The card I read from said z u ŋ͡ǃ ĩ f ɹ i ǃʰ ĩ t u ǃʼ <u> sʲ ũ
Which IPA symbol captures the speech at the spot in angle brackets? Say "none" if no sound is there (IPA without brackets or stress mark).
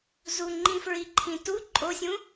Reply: o